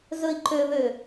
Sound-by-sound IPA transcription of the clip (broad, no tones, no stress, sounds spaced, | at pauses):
z ɵ i̯ ǃ ø β ø